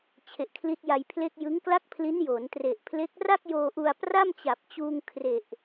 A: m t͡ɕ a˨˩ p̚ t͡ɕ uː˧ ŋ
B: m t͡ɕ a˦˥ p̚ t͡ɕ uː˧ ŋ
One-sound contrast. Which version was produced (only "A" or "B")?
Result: A